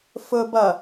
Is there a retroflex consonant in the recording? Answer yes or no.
no